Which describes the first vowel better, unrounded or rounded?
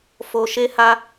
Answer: rounded